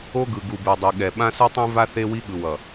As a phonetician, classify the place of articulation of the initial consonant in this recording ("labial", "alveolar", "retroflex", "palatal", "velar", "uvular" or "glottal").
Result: velar